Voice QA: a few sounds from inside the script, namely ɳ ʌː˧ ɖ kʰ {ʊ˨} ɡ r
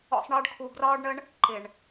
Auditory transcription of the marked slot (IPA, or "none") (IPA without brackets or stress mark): u˨